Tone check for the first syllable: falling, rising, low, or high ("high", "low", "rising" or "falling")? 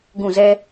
falling